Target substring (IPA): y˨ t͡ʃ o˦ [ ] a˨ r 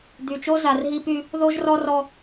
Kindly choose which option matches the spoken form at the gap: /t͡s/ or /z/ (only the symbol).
z